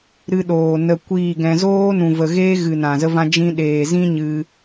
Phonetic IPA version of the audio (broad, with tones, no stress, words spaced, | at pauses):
ɾɨ˧ɗoː˨ nə˨ kʷiː˦˨ɡɛ̃˧ zoː˦nũ˨və˨ɣeː˦ ɣɨ˨ nã˨zə˦vã˦ d͡ʒĩ˧ɗeː˨zĩ˦ ɲɨ˧